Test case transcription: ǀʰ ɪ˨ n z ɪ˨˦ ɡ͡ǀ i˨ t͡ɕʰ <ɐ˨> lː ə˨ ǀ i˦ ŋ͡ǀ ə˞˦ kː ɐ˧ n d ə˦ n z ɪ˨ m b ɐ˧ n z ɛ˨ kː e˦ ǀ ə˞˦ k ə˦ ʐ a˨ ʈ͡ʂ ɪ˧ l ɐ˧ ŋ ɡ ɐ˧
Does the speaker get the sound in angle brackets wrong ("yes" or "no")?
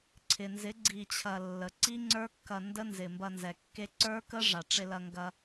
no